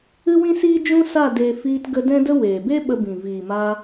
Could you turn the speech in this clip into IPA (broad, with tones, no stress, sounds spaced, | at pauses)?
ɨ˦ w ĩ˦ s iː˦ d͡ʒ ũ˦ s a˦˨ d e˦ f iː˧ t ɡ ə˧ d ɛ̃˦ d ə˦ w eː˨ b e˦ ɓ ə˧ b ĩ˨ v iː˨ m a˧